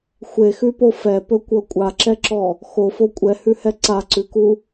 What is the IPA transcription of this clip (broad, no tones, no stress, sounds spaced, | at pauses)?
xʷ e x ʉ p o f ɛ p ɵ kʷ ɤ kʷʼ a ǁ ɛ ǁ ɔ | x o f o kʷʼ ɛ h ʉ h ɛ ǀ a ǀ ʉ k u